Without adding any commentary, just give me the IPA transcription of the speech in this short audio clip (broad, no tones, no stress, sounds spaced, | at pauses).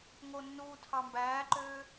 ŋ o nː uː tʰ ɑ m b æː ǃ øː